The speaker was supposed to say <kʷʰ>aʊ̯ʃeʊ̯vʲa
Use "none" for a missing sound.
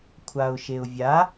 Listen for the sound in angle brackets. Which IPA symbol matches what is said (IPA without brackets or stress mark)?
kʷʰ